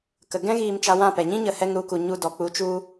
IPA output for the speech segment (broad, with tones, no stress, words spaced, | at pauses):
kə˨ɡɛ̃˦ ɣiː˧mt͡ʃa˧wã˦˨pɛ˨ ɲĩ˦ɲə˨hɛ˧ŋɾu˧ ku˨ ɲu˧dɔ˨ k͡pu˨˦t͡ʃu˧